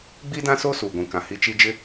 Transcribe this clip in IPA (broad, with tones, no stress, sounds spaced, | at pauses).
ɡ͡b i˦ d ã˦ s o˦ s uː˨ ɡʷ ĩ˨ k ã˨ h i˦ t͡ʃ i˦ d͡ʒ ɪ˦